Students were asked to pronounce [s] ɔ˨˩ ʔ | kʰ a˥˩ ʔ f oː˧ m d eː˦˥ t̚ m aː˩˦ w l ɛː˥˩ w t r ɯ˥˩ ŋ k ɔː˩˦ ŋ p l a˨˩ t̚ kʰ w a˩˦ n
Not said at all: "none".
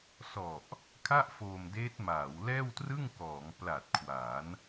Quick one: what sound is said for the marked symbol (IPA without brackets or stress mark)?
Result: s